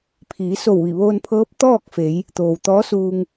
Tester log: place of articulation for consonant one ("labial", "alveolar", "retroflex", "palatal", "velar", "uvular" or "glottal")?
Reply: labial